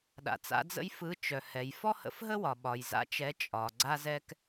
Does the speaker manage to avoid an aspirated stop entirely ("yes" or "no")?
yes